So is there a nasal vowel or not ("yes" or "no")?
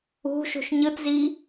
no